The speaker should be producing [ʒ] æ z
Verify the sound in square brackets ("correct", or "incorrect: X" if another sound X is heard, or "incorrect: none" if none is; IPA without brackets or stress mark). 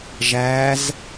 correct